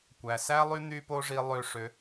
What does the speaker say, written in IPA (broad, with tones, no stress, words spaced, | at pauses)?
kʷæ˩sæ˥ lˠy˥ n̪y˥po˥ʐi˧ lˠø˧ ʂø˩˧